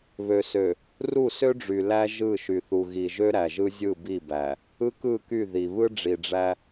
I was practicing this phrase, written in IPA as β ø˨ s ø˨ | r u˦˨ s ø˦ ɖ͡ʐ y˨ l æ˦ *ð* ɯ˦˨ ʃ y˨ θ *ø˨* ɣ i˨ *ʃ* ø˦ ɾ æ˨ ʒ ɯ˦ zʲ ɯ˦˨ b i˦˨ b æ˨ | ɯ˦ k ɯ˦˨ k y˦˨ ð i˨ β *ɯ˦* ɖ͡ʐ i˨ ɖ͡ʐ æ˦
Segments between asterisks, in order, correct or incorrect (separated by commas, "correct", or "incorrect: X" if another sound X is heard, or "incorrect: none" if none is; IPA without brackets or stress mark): incorrect: ʒ, incorrect: u˨, incorrect: ʒ, correct